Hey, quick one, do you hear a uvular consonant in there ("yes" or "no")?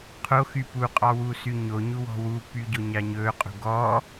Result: yes